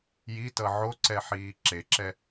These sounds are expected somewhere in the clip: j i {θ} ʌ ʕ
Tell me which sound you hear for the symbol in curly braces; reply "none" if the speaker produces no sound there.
t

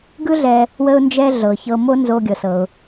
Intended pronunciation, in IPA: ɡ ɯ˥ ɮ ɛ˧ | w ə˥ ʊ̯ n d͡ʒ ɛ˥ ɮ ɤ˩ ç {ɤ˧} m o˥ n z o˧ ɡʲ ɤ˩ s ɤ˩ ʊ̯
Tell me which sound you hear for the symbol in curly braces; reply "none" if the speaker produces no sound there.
ɤ˧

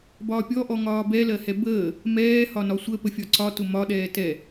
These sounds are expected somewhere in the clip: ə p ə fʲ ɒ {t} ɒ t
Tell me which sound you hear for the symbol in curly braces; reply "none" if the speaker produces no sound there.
ǀ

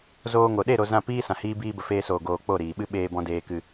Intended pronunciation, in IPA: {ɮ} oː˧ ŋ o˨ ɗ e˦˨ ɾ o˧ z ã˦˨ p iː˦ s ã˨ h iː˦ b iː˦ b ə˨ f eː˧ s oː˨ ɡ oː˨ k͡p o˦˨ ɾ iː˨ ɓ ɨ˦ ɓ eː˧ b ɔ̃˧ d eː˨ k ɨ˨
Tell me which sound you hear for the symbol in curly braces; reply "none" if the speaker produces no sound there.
z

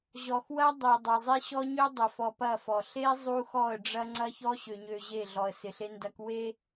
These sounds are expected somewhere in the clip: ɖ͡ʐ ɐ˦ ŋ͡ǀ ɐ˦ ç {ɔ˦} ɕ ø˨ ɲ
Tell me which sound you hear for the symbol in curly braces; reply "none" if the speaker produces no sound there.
ɔ˦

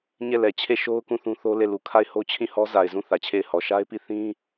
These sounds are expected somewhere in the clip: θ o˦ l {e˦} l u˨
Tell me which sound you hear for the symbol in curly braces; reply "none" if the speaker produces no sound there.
e˦˨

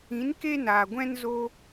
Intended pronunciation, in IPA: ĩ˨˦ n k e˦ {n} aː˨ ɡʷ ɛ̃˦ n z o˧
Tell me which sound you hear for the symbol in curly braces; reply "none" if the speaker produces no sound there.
n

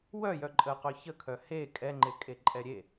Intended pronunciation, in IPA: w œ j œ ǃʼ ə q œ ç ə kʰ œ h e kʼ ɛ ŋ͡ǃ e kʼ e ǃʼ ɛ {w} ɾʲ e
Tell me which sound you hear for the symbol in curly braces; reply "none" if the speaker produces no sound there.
none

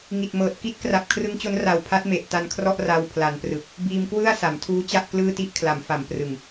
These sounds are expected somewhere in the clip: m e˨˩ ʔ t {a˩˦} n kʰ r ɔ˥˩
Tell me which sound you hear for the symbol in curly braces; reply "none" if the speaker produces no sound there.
a˧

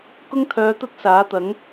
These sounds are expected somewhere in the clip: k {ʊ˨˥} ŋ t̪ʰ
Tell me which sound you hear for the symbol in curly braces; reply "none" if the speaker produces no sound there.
ʊ˥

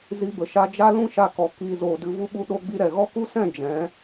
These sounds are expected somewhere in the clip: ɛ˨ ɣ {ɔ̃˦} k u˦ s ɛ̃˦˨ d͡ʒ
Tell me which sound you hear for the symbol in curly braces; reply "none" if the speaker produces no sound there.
ɔ˦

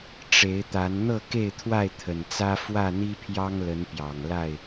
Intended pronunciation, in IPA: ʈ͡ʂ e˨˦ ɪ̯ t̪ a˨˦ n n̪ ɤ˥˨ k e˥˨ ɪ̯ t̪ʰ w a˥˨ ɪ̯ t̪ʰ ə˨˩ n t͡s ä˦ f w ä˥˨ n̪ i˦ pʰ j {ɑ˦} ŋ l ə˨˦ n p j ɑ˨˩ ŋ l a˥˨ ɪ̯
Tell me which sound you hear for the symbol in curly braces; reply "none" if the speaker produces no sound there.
ɑ˦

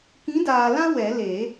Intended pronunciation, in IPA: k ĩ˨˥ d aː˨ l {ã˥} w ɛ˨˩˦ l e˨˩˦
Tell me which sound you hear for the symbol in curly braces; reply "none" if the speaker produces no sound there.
ã˥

